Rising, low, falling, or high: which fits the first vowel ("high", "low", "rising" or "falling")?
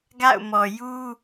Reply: falling